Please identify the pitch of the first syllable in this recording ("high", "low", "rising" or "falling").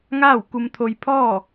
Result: falling